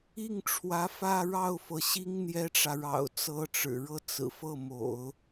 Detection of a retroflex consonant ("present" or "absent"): present